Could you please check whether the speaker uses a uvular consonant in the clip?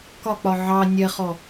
yes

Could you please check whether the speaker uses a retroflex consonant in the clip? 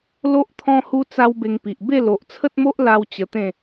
no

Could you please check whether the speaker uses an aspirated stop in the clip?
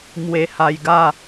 no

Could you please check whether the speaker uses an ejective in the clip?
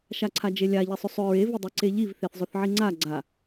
no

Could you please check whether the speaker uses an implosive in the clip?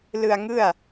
no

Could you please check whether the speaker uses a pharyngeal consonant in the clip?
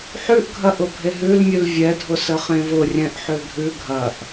yes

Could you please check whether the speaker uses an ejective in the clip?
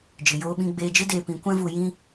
no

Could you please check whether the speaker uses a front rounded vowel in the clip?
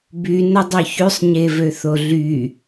yes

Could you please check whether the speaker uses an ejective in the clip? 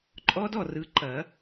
yes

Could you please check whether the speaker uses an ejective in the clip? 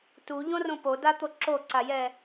no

